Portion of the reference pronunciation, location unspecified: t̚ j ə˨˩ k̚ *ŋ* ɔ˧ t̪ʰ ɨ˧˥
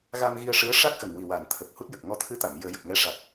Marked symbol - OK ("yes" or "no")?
yes